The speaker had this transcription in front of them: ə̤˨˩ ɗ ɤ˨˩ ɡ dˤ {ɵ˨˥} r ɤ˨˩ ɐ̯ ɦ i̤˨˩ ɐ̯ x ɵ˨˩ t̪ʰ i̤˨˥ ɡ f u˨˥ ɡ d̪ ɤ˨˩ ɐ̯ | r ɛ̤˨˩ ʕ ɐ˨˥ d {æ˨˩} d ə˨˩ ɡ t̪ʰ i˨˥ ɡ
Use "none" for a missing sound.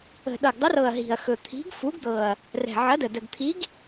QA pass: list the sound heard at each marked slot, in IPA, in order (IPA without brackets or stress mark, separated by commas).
ə˨˥, ə˨˩